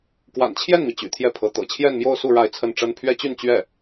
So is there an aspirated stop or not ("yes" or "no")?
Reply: yes